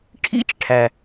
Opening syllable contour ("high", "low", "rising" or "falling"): high